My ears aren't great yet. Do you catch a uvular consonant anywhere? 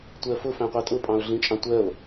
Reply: yes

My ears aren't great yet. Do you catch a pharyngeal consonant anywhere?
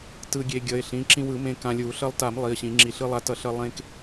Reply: no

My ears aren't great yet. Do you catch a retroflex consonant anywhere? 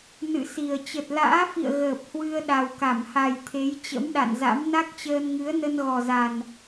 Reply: no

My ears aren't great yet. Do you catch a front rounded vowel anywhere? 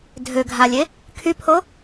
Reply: yes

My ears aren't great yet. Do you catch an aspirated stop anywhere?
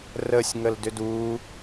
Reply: no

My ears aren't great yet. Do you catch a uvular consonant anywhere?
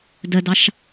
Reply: no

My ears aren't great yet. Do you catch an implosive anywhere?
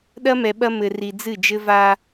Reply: yes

